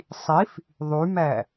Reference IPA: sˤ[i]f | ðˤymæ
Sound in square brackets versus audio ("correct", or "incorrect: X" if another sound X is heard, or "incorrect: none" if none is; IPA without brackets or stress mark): correct